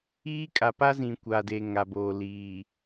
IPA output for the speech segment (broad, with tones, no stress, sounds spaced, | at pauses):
iː˦ kʼ a˨ p a˦ z ĩ˨ kʷ a˨ d e˨ ŋ a˨ b oː˨ l iː˨